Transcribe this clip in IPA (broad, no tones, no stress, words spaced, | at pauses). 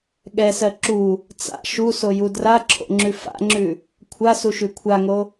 ɠɛsɜ ǁu | t͡sa̰ ʃusoju draǁʰo̰ŋ͡ǁʉ fa̰ŋ͡ǁʉ | kʷʰasuʃʉ kʷʰaŋo